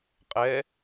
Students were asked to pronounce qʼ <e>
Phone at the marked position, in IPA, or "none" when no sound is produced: ɛ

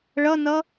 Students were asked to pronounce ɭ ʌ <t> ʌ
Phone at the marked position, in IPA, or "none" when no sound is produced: n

